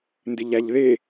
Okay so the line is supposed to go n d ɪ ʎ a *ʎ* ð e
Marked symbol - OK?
yes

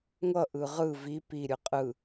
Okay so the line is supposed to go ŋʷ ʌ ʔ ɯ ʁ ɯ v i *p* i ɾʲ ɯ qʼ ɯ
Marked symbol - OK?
yes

